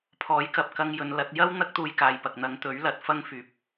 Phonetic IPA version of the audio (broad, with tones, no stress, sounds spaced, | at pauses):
pʰ ɔː˨˥ j k ɐ˨ p̚ k ɐ˧ ŋ j ɵ˨˧ n l ɐ˨˥ t̚ j ɐ˥ w n̪ ɐ˥ k̚ t̪ uː˧ j k aː˨ j p ɐ˨ k̚ n̪ ɐ˨˧ ŋ t̪ ɵ˨˥ ɥ l ɐ˨˥ t̚ f ɐ˥ ŋ f yː˨ p̚